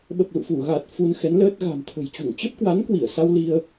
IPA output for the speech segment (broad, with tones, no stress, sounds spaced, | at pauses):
ɓ ə˨˩ p̚ l ṵ˧˨ f u˧˩ ɣ a˨˩ t̚ f u˧ n x ɛ˨˦ n l əː˦˥ t̚ ɣ a̤˨˩ m t̪ʰ ə̤˨˩ j t͡ɕ u˧˩ ŋ t͡ɕ ə˦˥ p̚ k w a˨˦ n k w i˧˩ ə̯ s a˧ w l i˧ ə̯